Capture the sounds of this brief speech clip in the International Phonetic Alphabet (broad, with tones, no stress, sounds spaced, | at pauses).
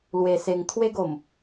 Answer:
l w e˧ s e˧ ŋ t̪ʰ w e˦ ɡ o˨˩ m